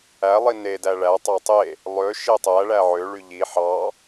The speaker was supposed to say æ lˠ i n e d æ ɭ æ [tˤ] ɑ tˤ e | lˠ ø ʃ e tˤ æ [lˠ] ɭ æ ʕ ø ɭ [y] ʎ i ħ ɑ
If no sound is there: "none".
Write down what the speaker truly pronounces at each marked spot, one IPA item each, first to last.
tˤ, none, y

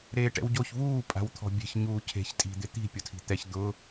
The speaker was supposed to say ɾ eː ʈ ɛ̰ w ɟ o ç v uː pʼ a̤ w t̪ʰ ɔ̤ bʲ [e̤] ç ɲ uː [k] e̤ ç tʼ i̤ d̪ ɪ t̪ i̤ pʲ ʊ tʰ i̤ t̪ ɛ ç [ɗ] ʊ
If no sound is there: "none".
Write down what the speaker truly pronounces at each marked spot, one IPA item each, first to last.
e̤, cʰ, d̪

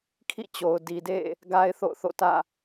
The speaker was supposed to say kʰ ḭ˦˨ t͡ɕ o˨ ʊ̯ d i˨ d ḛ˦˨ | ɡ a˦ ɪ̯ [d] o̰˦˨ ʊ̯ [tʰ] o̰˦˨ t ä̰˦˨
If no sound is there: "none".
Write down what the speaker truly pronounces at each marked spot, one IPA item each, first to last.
θ, θ

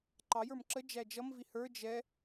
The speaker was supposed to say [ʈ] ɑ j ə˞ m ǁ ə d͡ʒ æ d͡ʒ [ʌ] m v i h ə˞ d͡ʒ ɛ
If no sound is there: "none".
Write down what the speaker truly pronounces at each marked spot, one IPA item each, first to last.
ǃ, ʌ

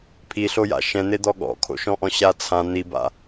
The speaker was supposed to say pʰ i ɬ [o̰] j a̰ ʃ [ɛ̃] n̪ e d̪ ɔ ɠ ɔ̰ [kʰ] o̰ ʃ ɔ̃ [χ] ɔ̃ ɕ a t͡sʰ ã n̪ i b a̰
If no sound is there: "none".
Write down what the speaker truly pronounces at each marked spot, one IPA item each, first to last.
o, ɛ̃, kʰ, ʔ

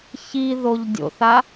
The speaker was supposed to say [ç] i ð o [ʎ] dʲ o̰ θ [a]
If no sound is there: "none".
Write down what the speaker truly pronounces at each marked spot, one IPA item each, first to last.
ç, ʎ, a

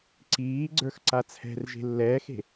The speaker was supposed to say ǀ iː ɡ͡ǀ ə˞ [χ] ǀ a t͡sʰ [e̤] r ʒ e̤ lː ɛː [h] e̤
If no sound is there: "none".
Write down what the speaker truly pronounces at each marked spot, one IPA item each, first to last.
x, ɛ̤, x

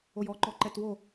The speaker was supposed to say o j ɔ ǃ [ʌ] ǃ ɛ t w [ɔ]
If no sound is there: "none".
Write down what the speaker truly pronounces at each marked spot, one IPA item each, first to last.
ɔ, o

